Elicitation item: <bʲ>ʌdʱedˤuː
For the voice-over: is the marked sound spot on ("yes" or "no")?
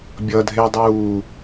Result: yes